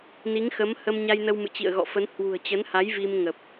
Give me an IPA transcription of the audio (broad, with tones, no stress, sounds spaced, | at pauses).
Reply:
n i˨˦ ŋ x ə˨˦ m h ə˧ m ɲ a˧ j n ə˧ w m ɨ̰˧˨ t͡ɕ ḭ˧˨ ə̯ ɣ ɔ̰˧˨ f ə˨˦ n h w ṳ˨˩ ə̯ t͡ɕ ə˨˦ n h a˨˦ j v i˧ m ŋ ə˨˩ p̚